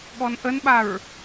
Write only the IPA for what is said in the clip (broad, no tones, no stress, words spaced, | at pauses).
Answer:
ɠɔnʔənɓaɹ